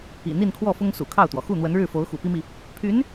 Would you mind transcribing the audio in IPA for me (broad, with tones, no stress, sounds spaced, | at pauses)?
ḭ˨˩ n̪ i˥˧ n kʰ w ɔ˥˩ f ʊ˥ ŋ s ṵ˨˩ kʰ ɑ˥˩ ʊ̯ t̪ w ɔ˩ x u˥˩ n̪ w ə˧˥ n ɻ ɻ̩˥˩ f o˧˥ ʊ̯ x ṵ˨˩ p i˥ m i˨ | pʰ y˧˥ n